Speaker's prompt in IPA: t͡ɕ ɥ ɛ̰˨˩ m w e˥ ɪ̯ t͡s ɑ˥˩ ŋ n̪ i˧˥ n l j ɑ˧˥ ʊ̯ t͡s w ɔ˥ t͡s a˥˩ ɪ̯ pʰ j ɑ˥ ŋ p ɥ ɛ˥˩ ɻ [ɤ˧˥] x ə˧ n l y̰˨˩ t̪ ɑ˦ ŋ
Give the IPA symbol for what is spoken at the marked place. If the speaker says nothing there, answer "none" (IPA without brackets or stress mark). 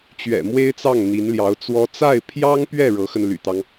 ɤ˧˥